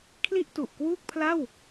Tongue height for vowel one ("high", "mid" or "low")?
high